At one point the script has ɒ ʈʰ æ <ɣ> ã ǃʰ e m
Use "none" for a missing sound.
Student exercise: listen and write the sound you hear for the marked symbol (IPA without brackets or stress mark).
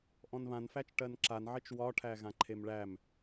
ɣ